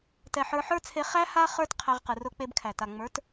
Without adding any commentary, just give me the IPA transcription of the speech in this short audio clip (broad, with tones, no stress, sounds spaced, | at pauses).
t ɛ˨ ħ ə˞˧ ħ ə˞˦ t͡sʰ e˧ χ æ˦ h a˦ χ ə˞˦ t qʰ æ˧ ʁ q ɨ˨ r ʊ˧ k͡p e˧ b kʰ æ˨ t a˨ ŋ͡m ə˞˨˦ t